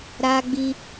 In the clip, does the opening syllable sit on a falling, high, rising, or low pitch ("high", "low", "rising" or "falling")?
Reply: high